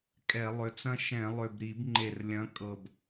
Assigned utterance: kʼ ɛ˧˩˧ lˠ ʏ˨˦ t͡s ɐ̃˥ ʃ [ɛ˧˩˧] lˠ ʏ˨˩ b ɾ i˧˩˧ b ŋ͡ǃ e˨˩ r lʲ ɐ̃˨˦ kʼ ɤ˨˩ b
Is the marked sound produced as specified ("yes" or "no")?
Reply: no